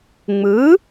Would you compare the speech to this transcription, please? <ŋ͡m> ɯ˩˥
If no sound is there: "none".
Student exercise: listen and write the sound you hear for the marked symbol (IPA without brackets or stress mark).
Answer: ŋ͡m